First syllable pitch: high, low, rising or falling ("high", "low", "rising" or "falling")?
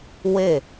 falling